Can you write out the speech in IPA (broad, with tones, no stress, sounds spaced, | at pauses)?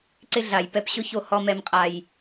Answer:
ǀ ɪ˦ ɮ a˨ j p ɛ˦ p ɕ ʊ˦ ç o˦ h ɔ˦ m ɛ˦ m qʼ a˦ j